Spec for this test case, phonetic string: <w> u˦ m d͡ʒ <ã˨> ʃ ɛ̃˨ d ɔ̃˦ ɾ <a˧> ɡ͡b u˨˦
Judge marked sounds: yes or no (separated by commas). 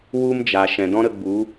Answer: yes, no, no